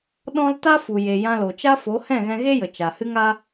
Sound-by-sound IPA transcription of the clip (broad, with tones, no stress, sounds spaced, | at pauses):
ɗ ɔ̃˦ l t a˦ f u˨ j e˨ j ã˧ l o˨ t͡ʃ a˦ f o˨˦ h ɛ̃˦˨ ɣ ɛ̃˧ ɣ e˦ j ə˨ t͡ʃ a˨ h ɨ˦ ŋ a˦